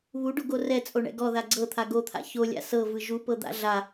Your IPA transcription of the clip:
β u ɖ o ɡ o r ɛ t͡sʼ o ɳ ɛ̰ ɡ ɔ ð a ɡ͡ǀ ɤ t̪ʰ a ɡ o t̪ʰ a̰ ç o lʲ a̰ s ɤ v ɯ ʒ u p ɤ d̪ a̰ ɮ a

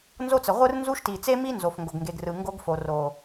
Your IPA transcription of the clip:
n z o˦ t͡s ə˨ ʁʷ ɯ˦ r n z u˦ ʃ t i˨ t͡s e˦ m i˦ n z o˨ f ŋ ɡ o˨ ɡ ŋ ɡ e˨ ɡ r ɯ˨ ŋ ɡ o˦ ɡ f o˨ r o˨

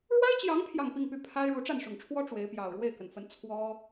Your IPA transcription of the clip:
ɻ w a˥ ɪ̯ t͡ɕ j ɑ˧˥ ŋ pʰ j ɑ˥˧ ŋ p i˥˧ ŋ p y˥˩ pʰ a˥ ɪ̯ ɻ u˧˥ ʈ͡ʂ a˥˩ n ʂ ʊ˨˩ ŋ ʈ͡ʂʰ w ɔ˥ ʈ͡ʂ w e˧˥ ɪ̯ p j ɑ˨˩ ʊ̯ ɻ w e˥˩ ɪ̯ k ə˩ n f ə˧˥ n t͡sʰ w ɔ˥

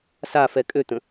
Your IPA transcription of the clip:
s a f ɛ kʼ ø t̪ ə̃

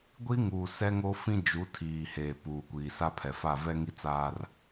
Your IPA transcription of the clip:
ɡʷ i˦ ŋ uː˨ s ɛ˦ ŋ o˦ f ĩ˦ d͡ʒ u˨˦ tʰ iː˨ h eː˨ p uː˨ kʷ iː˨ s a˦ pʰ ɛ˨ f a˦˨ v ɛ˦ ŋ i˦ t͡s aː˦ r

